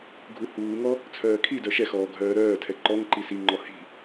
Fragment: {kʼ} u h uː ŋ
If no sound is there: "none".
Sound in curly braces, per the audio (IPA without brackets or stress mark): ɡʱ